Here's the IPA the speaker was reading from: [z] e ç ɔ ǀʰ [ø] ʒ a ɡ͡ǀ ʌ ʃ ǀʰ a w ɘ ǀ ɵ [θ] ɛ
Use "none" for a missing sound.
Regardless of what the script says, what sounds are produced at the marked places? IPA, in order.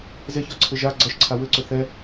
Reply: z, ɘ, θ

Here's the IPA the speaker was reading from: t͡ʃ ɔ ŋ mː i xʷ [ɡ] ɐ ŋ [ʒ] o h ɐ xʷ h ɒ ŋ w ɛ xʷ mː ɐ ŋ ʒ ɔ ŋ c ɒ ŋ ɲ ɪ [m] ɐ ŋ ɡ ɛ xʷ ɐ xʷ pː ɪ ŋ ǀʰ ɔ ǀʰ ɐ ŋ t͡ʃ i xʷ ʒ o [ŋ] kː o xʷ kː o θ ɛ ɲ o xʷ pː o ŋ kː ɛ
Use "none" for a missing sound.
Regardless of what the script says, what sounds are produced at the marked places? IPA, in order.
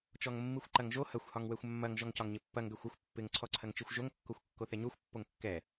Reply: ǃ, ʒ, pː, ŋ

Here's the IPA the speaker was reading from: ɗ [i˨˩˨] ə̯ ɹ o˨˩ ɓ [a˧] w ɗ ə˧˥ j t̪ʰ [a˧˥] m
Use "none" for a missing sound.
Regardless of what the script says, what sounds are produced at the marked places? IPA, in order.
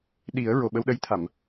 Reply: i˨˩˦, ə˧, a˨˩˨

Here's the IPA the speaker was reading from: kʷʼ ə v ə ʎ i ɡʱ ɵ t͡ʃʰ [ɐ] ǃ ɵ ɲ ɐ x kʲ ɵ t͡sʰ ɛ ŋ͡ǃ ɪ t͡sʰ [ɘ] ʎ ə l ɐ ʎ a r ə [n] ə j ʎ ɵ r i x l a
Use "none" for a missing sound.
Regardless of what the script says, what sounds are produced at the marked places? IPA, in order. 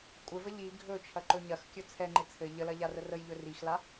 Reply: ɐ, ɘ, r

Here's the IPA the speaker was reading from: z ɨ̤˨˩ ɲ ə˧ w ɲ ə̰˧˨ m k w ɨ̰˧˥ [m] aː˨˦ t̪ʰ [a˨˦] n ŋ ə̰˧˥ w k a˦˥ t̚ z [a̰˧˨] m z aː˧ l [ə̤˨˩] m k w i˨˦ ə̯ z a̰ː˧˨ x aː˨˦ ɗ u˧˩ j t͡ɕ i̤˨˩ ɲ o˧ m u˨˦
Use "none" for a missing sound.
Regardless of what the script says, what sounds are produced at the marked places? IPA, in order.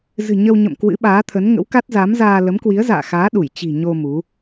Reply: ɓ, ə˨˦, a˨˦, ə˨˦

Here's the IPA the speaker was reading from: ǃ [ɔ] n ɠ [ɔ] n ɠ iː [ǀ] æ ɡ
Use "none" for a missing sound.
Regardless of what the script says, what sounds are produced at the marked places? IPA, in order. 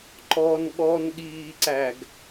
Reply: ɔ, ɔ, ǀ

